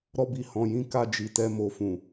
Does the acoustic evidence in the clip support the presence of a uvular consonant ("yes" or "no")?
no